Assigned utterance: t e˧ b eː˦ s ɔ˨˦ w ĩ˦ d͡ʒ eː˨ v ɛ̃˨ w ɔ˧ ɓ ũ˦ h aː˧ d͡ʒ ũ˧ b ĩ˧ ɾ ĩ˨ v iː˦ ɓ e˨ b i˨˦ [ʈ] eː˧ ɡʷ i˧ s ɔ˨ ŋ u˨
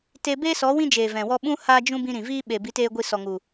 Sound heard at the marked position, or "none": t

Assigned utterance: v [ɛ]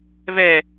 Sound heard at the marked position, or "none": ɛ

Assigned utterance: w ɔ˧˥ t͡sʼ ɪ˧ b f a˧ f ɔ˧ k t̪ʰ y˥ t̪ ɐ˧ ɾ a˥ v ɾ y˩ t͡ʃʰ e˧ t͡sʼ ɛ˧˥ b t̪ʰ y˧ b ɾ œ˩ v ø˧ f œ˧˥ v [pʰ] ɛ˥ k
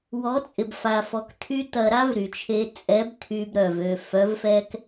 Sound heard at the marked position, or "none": f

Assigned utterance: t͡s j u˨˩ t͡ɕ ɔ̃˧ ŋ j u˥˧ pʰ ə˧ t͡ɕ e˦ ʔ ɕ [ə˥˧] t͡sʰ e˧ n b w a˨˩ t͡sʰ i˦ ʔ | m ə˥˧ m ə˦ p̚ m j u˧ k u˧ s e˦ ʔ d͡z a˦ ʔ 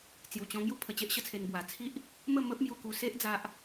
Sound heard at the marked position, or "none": ə˥˧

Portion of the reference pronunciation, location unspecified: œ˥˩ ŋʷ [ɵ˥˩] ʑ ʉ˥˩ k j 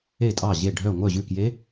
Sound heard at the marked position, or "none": œ˥˩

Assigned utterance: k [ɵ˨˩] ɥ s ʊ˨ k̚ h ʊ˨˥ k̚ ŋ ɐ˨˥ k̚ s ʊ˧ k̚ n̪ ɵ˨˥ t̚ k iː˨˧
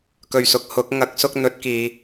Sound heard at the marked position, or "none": ɵ˨˩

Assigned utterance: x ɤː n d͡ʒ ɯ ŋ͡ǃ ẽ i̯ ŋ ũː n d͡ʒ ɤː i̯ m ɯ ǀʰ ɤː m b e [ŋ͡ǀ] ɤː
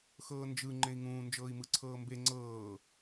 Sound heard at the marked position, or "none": ŋ͡ǀ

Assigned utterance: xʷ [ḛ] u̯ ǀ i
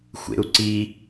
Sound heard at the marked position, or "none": ḛ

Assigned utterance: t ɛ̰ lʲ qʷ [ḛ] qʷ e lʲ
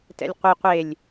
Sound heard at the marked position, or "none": e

